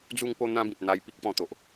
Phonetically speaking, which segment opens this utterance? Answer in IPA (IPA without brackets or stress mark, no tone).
d͡z